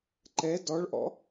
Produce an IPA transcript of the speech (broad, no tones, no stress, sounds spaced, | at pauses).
ǃ ɛ d ɔ ɭ ʔ ɔ̰